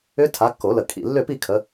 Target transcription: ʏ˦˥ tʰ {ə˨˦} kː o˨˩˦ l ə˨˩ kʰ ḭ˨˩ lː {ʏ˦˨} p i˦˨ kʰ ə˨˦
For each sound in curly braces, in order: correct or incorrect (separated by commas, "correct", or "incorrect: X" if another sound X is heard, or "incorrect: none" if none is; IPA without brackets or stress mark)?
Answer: incorrect: a˨˦, correct